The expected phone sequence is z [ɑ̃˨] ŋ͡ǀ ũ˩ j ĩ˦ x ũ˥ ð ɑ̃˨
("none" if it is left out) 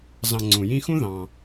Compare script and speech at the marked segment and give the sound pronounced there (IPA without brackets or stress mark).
ɑ̃˨